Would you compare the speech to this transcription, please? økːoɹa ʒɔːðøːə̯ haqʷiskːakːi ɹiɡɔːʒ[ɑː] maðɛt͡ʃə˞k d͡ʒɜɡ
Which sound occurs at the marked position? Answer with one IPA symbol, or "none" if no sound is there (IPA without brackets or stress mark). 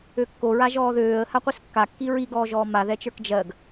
ɔː